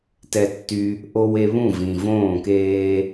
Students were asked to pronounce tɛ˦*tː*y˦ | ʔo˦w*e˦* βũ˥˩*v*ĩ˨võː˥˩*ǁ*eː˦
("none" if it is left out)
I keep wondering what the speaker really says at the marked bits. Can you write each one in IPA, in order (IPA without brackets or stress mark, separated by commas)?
tː, e˦, v, k